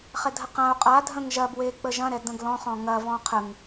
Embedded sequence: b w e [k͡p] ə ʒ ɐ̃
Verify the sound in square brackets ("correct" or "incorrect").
correct